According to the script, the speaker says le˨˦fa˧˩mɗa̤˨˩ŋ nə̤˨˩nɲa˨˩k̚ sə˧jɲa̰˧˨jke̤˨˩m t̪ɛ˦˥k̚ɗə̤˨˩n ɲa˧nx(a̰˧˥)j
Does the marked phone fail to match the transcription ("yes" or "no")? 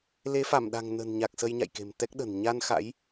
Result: no